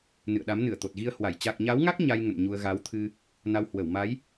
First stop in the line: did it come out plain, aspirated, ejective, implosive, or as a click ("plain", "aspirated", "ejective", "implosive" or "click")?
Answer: implosive